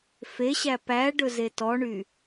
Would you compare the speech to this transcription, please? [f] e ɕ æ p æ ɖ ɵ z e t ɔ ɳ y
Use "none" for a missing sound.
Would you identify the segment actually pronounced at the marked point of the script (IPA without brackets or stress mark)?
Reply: f